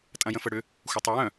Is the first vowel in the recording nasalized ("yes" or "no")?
yes